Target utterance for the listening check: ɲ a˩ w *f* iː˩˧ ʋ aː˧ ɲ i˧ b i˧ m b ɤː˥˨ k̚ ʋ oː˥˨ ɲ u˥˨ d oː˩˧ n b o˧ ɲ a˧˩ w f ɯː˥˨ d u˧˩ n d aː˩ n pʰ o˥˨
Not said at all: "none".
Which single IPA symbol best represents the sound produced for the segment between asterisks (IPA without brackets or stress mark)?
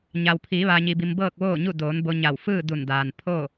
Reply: pʰ